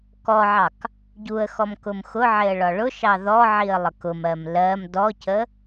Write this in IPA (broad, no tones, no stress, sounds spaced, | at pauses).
k ɔ ʕ ɑ k | ɟ u ə̯ x ɔ m k ʊ m x ʊ ʕ ɪ ə̯ ɭ ɒ ɭ ʊ ʃ ɑ ð ɔ ʕ i ə̯ lˠ ə k ʊ m ɜ m l ɜ m d ɔ c ə